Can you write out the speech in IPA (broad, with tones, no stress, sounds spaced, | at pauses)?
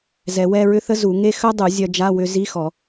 z ɛ˨˩˦ w ɛ˧˥˧ ɹ ʏ˥ θ ə˥ z u˨˩˦ ŋ e˥ x œ˥ dˤ u˨˩˦ zʲ œ˧ d͡ʒ a˧˥˧ w ʏ˧ z i˧˥˧ x ɔ˨˩˦